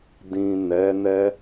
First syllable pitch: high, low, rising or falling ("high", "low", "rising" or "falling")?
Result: low